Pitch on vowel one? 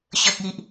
low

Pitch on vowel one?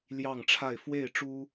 falling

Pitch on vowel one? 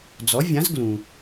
rising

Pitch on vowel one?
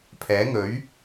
rising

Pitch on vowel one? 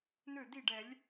falling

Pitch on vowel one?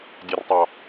low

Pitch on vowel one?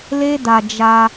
high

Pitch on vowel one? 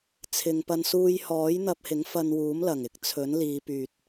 low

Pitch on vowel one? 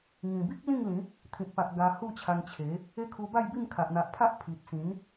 low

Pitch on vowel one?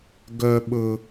low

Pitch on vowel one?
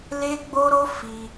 high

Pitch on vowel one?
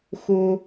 high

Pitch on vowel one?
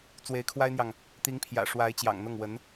rising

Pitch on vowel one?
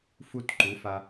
falling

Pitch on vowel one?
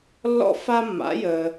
high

